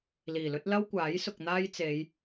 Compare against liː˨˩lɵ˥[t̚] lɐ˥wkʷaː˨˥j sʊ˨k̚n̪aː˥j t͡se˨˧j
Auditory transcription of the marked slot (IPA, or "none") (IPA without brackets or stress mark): t̚